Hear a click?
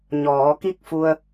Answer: no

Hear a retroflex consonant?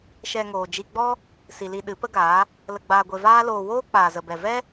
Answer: no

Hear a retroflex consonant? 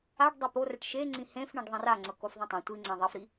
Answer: yes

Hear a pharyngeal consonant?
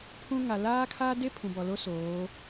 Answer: no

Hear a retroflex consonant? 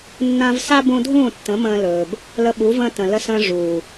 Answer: yes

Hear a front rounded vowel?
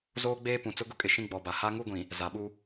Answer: no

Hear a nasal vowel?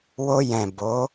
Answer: yes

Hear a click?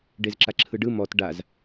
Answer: yes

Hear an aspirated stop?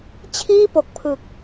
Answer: yes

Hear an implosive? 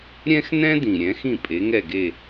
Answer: no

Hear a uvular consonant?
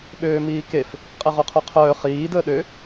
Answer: yes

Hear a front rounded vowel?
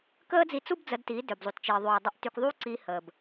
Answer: yes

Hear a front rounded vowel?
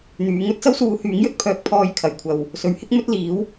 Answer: yes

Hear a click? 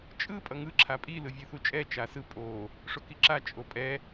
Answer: yes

